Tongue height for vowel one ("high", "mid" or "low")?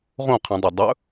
mid